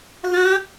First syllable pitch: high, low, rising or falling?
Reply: high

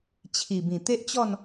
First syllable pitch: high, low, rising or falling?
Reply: low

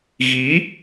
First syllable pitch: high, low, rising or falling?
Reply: rising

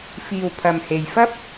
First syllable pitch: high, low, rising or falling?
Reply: low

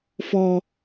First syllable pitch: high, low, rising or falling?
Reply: high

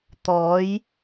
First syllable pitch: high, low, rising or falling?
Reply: rising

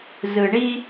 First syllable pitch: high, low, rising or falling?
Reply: low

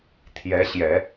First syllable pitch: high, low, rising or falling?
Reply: rising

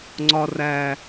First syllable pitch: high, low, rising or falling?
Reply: high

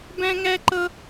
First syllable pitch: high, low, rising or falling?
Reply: high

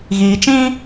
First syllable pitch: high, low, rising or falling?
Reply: low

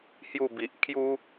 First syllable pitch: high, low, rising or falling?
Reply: falling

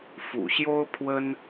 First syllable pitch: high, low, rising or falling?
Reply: low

